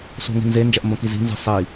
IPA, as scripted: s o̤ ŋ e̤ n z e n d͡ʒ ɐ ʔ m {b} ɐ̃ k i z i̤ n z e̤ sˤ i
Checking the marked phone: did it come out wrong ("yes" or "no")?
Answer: no